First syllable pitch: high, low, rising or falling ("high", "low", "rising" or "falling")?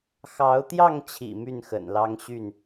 rising